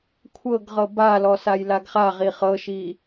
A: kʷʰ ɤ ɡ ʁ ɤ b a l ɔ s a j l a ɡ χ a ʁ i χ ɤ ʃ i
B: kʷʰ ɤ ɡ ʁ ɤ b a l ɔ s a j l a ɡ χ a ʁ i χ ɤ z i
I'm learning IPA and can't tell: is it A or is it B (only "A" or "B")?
A